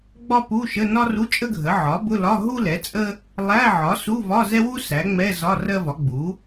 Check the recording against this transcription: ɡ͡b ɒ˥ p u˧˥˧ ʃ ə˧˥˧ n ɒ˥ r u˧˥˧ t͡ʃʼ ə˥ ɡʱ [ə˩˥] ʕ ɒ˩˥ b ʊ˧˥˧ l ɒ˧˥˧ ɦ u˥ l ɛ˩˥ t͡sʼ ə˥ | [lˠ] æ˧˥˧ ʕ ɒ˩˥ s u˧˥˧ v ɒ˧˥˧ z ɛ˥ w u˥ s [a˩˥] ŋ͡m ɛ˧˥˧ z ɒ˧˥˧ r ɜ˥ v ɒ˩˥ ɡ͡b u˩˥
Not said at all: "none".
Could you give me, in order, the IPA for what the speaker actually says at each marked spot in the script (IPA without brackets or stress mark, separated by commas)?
ə˩˥, lˠ, æ˩˥